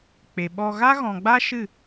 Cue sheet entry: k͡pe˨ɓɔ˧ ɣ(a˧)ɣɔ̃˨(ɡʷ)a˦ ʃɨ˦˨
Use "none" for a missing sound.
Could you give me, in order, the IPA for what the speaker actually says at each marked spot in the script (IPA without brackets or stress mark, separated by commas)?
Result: a˦, ɡ͡b